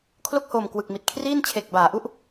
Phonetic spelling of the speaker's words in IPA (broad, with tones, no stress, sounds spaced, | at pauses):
kʰ l o˥˩ k̚ h oː˨˩ m k w ɯ˨˩ k̚ m i˨˩ t̚ kʰ r iː˥˩ n t͡ɕʰ e˨˩ k̚ b aː˩˦ ʔ u˥˩ ʔ